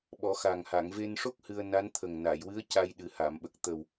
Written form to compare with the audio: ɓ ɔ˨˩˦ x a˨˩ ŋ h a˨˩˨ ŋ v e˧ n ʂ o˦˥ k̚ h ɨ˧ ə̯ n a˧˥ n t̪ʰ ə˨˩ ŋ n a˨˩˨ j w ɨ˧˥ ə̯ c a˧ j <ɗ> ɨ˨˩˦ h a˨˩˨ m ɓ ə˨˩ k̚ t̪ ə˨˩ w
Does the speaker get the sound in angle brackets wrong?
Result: no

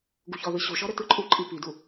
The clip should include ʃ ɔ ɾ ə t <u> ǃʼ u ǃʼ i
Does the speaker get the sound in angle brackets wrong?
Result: yes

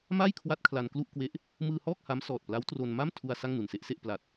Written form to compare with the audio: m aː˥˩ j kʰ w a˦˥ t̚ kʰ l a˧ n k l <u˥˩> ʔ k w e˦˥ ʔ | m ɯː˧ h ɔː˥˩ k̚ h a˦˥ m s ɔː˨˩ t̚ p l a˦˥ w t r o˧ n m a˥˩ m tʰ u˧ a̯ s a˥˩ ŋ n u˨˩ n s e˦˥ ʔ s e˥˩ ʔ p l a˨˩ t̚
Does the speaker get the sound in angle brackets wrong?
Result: no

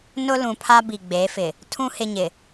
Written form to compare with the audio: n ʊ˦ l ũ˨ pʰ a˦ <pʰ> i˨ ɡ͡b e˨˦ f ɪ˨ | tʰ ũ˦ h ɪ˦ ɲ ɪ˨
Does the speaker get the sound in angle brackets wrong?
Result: yes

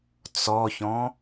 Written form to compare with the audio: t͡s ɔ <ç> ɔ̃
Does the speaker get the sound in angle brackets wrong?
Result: no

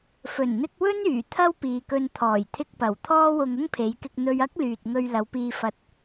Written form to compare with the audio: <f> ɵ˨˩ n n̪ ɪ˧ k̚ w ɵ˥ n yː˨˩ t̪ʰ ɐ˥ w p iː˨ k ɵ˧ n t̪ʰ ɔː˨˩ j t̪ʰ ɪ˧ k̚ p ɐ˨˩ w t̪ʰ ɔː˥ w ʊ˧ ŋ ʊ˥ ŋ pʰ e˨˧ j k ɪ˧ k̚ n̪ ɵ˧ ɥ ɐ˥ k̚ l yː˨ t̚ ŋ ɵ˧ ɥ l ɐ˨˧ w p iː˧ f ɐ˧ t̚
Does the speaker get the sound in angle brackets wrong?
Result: no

